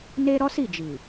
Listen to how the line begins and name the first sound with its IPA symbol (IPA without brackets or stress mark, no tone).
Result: n